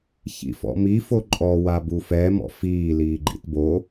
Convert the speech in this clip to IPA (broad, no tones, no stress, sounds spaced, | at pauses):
ç ḭ f ɔ̰ m i f o ǃʼ ɔ w a b u f ɛ m ɔ̰ f iː l iː ɡ͡ǃ ḭ t b o